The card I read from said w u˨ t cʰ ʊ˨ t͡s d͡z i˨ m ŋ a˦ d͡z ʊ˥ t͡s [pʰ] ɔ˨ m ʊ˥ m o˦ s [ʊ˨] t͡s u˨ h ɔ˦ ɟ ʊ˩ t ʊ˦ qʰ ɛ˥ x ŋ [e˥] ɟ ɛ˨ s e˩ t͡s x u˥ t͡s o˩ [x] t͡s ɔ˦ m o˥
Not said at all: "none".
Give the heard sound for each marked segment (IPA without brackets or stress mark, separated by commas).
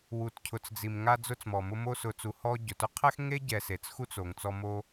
m, ʊ˨, e˥, ŋ